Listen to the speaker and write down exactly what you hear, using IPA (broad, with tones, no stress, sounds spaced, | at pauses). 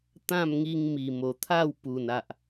t̪ ã˥˧ m ŋ i˧ ŋ m i˨˩ m o˨˩ t̪ʰ a˥˧ w p u˨˩ n a˨ ʔ